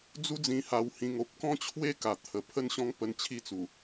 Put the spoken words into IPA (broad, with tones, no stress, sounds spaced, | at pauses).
d͡z u˦ d͡z ĩ˧ h a˧ w h ĩ˧ ŋ o˦ p̚ k ɔ̃˥˧ t͡ɕʰ w e˥˧ k a˨˩ t̪ʰ ə˨˩ pʰ ə˥˧ n ɕ ɔ̃˦ ŋ p ə˧ n t͡ɕʰ i˥˧ t͡s u˨˩